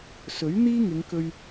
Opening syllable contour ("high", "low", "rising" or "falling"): rising